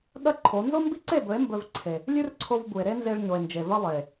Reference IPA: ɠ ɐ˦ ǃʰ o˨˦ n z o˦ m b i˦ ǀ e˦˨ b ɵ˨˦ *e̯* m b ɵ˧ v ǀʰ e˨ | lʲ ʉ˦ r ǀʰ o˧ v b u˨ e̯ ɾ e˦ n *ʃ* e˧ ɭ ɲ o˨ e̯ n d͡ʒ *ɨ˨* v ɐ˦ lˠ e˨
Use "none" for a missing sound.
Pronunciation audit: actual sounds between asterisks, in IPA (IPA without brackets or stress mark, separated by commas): e̯, z, e˨